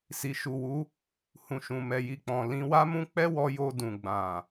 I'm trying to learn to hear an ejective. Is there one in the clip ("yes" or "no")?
no